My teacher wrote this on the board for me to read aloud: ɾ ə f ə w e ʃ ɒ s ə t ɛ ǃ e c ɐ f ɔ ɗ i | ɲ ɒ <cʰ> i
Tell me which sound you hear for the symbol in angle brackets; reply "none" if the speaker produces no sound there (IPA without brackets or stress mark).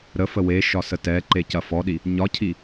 cʰ